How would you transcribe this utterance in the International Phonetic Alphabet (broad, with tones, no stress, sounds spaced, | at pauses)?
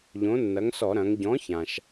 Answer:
ʎ õ˨˥ nː ɐ˨˥ ŋ s ɔ˧˩˧ ɾ ɐ̃˩˧ ŋ ɟ ɔ̃˨˥ ç ã˩ ʃ